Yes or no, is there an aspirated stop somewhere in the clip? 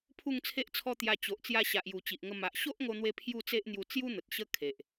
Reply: yes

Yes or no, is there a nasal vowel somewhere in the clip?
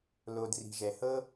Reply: no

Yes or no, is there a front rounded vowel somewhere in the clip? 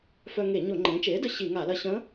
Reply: yes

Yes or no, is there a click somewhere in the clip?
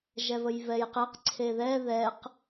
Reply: yes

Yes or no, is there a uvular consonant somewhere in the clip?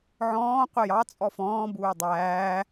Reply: yes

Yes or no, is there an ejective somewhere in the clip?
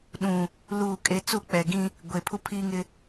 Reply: yes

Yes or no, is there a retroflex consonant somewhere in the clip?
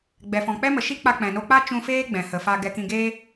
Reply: no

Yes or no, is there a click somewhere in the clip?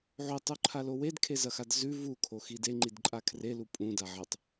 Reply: yes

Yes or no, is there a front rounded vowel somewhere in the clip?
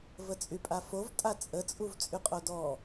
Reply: yes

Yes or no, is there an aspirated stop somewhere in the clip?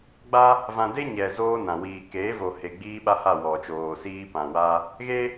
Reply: no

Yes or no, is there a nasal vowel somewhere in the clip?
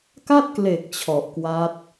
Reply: no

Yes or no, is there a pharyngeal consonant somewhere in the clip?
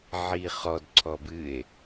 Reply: yes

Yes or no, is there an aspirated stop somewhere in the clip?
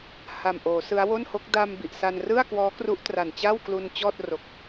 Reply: no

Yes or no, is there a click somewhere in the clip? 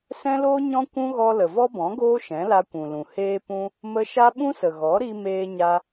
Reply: no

